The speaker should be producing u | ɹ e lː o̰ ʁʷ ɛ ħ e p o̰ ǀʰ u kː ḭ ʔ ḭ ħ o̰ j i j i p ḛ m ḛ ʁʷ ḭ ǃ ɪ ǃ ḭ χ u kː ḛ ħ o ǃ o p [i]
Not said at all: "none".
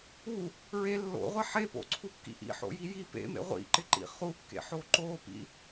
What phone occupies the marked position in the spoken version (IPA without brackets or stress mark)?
ḭ